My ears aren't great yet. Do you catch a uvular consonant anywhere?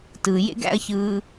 no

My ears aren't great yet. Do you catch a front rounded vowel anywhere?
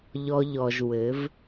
no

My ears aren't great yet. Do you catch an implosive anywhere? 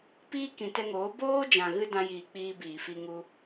no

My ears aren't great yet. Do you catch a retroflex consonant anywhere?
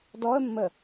no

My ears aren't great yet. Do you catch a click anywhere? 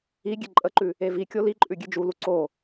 yes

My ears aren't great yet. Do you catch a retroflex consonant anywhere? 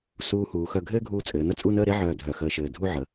no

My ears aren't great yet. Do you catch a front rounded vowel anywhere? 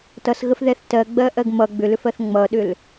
yes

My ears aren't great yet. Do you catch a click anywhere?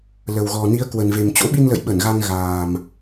no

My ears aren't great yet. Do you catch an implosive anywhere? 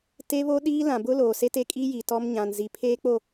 yes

